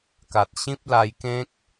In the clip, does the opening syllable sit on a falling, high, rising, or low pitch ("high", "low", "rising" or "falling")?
low